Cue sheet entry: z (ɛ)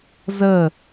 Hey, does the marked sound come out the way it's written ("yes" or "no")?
no